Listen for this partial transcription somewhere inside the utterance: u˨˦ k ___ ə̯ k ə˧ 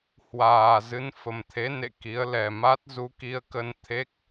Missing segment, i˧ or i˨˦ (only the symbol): i˧